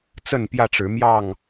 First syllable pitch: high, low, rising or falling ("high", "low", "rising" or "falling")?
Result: falling